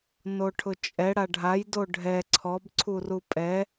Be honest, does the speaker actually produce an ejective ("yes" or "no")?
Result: yes